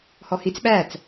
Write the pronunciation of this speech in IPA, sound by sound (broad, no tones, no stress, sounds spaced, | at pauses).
h ɔ h i t͡s ɓ æ t͡s